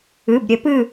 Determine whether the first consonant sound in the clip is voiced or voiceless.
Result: voiced